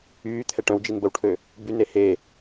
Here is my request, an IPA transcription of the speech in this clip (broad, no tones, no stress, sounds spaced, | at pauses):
yː t̪ʰ ɛ ʈ œ̃ w d͡ʒ i n b ə w ʈʰ ø | b y n e h e